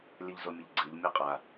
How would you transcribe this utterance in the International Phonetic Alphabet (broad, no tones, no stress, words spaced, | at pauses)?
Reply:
lʲəʎzomʲəʎɡ͡ǀɨʎ mʲaqʼa